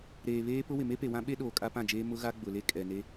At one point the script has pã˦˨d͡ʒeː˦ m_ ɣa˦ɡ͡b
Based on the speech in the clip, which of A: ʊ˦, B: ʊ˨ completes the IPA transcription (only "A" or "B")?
A